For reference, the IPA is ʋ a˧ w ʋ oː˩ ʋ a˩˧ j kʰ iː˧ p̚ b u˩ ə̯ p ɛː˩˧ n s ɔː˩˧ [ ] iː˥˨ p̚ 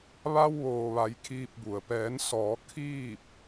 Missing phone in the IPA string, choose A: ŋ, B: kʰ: B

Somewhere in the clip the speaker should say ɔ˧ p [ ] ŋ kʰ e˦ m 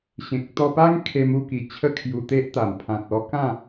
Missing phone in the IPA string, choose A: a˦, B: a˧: A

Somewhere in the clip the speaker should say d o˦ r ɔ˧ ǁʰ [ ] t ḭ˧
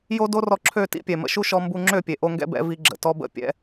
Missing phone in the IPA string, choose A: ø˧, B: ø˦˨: B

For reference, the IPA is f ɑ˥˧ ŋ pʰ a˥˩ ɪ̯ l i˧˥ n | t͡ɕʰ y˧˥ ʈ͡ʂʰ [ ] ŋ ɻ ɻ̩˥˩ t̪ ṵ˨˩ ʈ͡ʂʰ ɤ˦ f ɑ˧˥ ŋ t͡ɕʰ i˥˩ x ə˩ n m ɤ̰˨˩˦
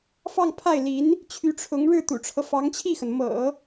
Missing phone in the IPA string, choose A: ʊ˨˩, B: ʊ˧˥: B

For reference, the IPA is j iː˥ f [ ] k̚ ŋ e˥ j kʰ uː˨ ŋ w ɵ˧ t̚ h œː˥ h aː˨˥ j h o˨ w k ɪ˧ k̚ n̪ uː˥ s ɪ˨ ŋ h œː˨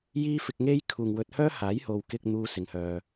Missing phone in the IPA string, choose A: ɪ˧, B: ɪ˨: A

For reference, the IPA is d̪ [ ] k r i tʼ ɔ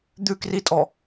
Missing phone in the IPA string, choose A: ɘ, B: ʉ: B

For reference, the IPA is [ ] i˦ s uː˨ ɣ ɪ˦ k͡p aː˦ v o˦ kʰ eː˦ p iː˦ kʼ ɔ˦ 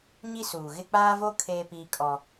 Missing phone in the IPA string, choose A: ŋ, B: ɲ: B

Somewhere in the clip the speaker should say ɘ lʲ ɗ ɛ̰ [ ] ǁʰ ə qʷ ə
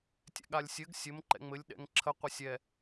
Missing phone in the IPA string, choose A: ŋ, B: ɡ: A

